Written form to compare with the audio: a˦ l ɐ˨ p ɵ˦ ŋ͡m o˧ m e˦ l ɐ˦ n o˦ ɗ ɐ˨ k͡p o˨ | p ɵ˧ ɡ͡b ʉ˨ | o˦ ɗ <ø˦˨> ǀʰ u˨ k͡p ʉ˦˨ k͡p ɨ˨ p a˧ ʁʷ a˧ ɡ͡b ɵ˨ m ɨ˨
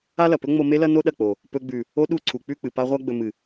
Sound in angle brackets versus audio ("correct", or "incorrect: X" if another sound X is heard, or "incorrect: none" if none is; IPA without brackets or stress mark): incorrect: u˦˨